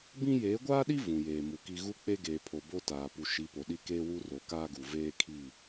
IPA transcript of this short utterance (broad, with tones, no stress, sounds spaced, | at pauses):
b ĩ˦ j eː˨˦ ɡʷ aː˦ ɗ i˦ v ũ˨ j eː˨ m u˨ k i˦ ɣ u˦ k͡p e˦ ɡ eː˨ pʰ o˨ b o˦ t aː˨ p u˨ ʃ i˨˦ p o˨ ɗ i˦ k eː˦ w u˦ r o˨ k aː˦ ɡ u˨ v eː˦ kʰ i˦˨